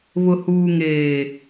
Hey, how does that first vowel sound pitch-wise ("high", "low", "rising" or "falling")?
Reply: low